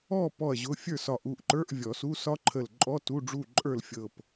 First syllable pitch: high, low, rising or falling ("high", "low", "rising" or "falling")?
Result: falling